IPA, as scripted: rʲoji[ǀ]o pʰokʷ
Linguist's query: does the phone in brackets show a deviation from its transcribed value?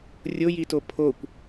yes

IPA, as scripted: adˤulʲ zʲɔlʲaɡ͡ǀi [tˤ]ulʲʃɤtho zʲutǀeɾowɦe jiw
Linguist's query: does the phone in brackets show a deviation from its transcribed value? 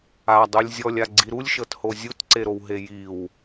yes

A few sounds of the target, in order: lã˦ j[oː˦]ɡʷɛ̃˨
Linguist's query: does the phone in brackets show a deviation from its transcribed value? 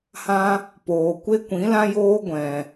no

